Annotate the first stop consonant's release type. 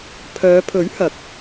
aspirated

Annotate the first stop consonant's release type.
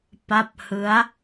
plain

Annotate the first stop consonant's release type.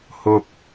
plain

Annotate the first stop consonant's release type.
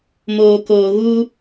plain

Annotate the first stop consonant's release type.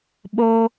implosive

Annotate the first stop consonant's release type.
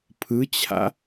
aspirated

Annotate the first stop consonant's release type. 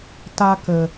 plain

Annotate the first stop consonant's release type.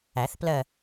plain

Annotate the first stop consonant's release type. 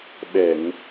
implosive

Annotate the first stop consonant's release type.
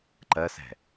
click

